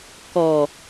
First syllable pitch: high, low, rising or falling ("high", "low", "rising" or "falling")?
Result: low